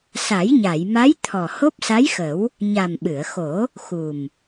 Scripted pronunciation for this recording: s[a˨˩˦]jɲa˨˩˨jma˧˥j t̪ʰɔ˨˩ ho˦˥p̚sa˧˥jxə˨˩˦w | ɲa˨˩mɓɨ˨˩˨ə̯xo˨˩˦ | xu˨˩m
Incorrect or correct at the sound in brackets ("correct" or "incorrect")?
correct